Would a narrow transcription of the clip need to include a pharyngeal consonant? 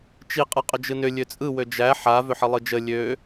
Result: yes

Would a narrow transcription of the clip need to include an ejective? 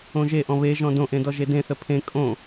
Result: yes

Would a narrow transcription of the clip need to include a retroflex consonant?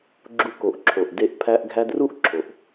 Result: no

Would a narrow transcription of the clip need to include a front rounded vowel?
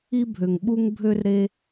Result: yes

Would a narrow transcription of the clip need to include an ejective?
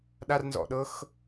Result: no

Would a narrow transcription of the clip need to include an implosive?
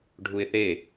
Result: no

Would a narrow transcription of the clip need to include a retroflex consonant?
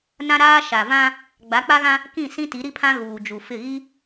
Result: no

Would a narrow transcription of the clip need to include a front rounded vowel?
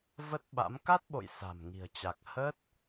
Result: no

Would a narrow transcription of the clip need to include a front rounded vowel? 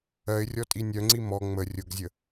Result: yes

